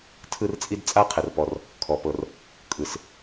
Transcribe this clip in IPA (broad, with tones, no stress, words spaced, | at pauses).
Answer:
tʰɯ˥rt͡sʼi˥d t͡sʼa˥qʰɛ˩rpɔ˩r | kʰɔ˩pɤ˩r | kʼɯ˩s